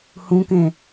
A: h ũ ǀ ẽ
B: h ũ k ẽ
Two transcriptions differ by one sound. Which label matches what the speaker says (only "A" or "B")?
B